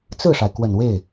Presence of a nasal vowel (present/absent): absent